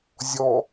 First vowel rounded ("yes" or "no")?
yes